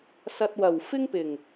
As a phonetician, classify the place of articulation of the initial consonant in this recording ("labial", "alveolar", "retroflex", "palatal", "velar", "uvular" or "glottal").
alveolar